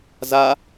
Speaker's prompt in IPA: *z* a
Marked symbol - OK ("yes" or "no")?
yes